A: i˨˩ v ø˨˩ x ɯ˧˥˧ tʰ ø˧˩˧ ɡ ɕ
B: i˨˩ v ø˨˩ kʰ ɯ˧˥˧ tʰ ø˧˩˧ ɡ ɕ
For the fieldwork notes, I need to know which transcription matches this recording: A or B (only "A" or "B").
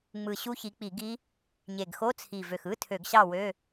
A